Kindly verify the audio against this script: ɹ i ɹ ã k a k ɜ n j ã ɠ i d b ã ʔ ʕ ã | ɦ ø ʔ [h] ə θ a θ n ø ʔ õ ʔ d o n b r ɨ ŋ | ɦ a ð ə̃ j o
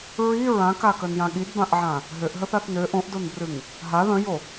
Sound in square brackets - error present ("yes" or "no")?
yes